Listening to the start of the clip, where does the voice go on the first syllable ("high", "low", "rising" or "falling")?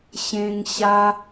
high